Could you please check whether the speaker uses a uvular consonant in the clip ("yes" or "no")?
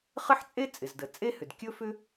yes